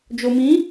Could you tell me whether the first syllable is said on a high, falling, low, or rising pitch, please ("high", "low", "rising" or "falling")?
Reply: low